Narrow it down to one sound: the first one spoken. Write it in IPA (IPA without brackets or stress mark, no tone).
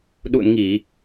ɗ